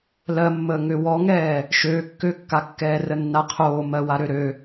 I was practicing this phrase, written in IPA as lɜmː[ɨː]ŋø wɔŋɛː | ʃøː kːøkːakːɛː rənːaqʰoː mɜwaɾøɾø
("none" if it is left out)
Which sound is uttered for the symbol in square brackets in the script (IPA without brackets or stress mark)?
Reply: əː